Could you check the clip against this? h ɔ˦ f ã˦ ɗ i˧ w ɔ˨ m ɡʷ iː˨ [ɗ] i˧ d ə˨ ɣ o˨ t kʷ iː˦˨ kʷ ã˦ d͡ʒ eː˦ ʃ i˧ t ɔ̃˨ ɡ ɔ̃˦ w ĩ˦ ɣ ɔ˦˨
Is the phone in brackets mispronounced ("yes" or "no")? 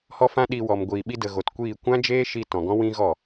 yes